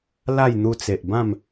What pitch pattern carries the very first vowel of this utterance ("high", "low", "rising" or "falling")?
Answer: falling